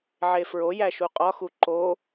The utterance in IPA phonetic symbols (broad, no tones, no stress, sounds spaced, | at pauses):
ʕ e f ɹ o j æ ʃ u qʼ ɒ x u ǃ o